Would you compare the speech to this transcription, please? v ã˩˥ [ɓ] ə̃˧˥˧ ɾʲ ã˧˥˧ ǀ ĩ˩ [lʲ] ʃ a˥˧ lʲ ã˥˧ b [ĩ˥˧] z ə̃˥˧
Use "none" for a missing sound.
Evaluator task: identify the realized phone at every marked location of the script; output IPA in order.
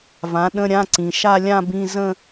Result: ɗ, none, ĩ˧˥˧

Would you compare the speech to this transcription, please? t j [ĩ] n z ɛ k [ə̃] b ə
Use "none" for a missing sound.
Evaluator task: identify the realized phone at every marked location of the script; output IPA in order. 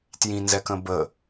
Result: ĩ, ə̃

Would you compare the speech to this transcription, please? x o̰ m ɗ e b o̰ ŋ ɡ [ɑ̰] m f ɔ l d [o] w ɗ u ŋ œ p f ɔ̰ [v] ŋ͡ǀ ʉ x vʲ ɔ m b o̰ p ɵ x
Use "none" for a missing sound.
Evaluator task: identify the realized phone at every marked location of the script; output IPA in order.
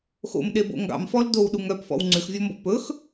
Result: ɑ̰, o, w

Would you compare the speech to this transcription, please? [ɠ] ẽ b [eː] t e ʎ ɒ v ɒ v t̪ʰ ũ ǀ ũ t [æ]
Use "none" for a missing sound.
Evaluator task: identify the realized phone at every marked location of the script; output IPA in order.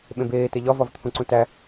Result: ɓ, eː, æ

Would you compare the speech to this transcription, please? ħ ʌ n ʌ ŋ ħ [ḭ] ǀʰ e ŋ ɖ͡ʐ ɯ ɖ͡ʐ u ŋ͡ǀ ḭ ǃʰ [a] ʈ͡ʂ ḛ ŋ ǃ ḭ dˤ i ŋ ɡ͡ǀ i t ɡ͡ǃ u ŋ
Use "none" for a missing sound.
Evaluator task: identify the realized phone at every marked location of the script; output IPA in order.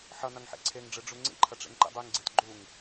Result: ḛ, ʌ

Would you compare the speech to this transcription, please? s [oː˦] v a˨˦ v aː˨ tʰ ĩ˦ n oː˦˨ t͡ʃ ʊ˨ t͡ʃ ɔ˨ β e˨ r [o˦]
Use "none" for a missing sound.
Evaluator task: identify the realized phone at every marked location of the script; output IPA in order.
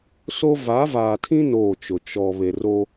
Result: o˦, o˦

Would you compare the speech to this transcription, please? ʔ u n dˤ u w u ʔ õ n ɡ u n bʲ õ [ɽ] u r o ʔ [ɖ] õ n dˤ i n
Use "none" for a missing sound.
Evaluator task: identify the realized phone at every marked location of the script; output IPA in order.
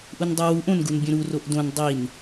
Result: ɾ, d

